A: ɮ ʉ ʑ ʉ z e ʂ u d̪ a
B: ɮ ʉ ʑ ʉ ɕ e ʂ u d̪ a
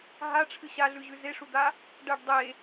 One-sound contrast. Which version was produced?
A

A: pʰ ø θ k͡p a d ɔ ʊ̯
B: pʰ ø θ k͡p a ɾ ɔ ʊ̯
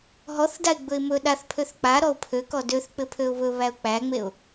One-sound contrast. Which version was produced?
B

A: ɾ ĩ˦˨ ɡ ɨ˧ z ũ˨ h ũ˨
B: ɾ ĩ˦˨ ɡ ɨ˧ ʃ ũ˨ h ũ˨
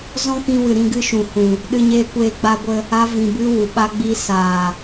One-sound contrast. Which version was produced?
B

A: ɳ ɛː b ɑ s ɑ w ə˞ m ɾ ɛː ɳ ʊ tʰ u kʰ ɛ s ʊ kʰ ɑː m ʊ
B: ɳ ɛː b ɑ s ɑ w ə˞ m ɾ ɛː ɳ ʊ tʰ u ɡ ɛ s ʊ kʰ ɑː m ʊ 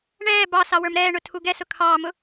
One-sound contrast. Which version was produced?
B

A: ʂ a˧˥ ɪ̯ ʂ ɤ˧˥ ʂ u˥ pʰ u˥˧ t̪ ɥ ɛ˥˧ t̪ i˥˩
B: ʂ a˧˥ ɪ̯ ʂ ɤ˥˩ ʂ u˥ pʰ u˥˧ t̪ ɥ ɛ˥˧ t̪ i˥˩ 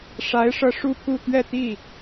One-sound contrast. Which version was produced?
A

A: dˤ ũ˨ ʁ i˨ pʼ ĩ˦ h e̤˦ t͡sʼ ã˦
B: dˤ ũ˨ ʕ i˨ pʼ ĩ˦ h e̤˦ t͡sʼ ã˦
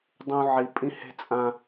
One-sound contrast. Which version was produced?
B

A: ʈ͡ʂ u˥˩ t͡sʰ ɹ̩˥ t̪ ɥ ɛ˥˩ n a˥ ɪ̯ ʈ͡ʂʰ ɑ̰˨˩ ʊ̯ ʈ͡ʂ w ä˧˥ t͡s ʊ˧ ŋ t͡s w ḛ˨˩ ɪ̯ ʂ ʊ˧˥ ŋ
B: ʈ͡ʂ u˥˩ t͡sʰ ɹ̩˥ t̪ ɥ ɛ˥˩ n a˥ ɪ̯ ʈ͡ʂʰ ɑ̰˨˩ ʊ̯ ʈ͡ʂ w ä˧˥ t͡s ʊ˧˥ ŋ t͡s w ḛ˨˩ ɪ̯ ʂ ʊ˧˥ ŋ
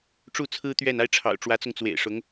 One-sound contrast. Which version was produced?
A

